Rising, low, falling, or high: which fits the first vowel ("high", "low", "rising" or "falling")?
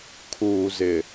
low